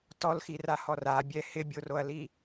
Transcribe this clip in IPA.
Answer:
t ɔ l x i r a h ɔ r a bʲ ɛ h ɪ bʲ o r o ɐ̯ l i

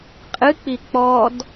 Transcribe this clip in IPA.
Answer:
qʼ ɨ k͡p i k͡p ɔ d

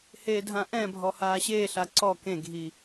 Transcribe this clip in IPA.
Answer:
h eː dʱ ã ʔ ɛ̃ bʱ ɔ h aː ɕ eː ɬ a ǀ ɔ k ẽ ɡʱ i

